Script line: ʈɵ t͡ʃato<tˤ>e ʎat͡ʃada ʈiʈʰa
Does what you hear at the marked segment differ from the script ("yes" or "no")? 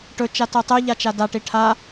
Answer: no